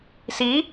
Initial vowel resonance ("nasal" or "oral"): oral